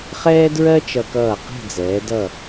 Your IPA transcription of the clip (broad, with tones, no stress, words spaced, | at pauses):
χɛː˥dɹɜ˥ t͡ʃʌ˧kʌː˧˩qɛ̤˥˧d͡zɛː˩˧ dʌ˧˩